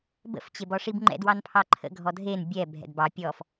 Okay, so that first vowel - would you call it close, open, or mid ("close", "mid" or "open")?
mid